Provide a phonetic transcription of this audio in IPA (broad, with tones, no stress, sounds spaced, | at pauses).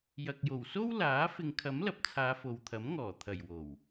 j ɐ˨ k̚ j o˨˩ w s o˥ w l aː˨˥ f ɪ˨˧ ŋ kʰ ɐ˨˥ m l ɐ˨ p̚ t͡sʰ aː˨˧ f o˨ w t̪ʰ ɐ˨˥ m ŋ ɔː˨˩ t̪ʰ ɐ˨˩ j w o˨˩ w